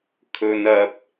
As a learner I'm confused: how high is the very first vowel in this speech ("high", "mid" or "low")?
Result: mid